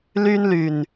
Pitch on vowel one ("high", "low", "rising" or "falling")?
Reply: high